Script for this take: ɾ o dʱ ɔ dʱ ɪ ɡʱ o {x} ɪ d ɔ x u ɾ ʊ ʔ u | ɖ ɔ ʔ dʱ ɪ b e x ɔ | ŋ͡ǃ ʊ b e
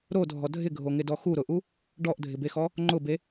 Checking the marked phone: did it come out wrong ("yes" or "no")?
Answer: yes